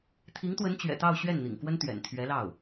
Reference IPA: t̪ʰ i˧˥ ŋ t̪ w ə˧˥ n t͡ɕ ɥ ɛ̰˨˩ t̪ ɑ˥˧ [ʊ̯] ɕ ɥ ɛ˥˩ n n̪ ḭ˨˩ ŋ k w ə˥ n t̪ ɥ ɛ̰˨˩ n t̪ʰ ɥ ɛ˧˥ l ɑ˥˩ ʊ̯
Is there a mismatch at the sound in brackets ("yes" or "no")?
no